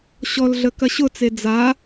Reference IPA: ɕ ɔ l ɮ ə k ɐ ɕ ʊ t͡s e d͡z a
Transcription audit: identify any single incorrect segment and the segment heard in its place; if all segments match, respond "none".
none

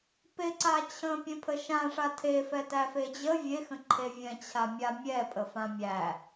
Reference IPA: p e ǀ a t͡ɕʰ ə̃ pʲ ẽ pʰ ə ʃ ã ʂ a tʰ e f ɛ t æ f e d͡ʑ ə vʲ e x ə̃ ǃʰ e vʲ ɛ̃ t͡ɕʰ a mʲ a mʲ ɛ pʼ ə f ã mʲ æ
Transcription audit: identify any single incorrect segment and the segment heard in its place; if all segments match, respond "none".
none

